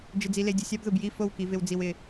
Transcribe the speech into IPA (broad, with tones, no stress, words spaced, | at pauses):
d͡ʒɪ˨d͡zi˨le˨ dʲʊ˨sʲa˦bðʊ˨b ji˦˨fo˦˨wki˨vɪ˨w d͡zi˨wɪ˨